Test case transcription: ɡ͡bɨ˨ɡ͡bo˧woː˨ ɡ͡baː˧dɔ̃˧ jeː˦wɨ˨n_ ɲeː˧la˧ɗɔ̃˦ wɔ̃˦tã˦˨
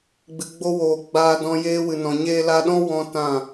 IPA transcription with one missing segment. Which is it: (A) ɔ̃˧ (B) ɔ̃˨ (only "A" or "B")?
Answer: B